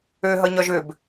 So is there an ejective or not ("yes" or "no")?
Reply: no